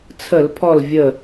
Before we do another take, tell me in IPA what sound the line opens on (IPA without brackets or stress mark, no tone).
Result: t͡sʰ